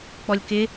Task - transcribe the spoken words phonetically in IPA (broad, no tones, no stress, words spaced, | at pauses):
k͡pɔlʲkɪ